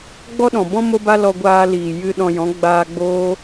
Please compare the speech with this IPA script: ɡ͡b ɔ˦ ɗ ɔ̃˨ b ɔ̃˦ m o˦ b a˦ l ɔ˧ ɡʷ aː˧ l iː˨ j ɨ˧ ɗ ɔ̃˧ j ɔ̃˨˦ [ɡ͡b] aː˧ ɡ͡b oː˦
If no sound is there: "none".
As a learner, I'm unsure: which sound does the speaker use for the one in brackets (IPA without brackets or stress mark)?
ɡ͡b